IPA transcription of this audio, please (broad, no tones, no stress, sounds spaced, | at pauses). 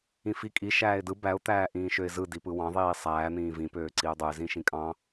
ĩ f i kʼ i ʃ æː ɪ̯ d ɯ b æ ʊ̯ t̪ æː ʔ ĩː ʃ ø ɪ̯ z ɯ d i p ɯ w ɑ̃ ðˤ iː sˤ æː n̪ ĩː v ĩ p øː ǀ i ʊ̯ dˤ u ɪ̯ z ĩ ʃ ĩ kʼ ɑ̃